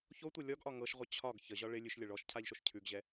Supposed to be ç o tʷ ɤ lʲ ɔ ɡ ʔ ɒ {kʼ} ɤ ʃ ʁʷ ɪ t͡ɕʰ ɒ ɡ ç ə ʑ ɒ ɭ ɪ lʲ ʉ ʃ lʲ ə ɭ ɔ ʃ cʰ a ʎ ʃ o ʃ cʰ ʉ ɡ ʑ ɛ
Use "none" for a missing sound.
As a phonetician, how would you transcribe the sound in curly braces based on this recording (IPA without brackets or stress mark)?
ŋ